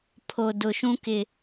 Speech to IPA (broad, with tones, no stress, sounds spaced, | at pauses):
pʰ o˨ d ʊ˨ ʃ ũ˦ k ɪ˨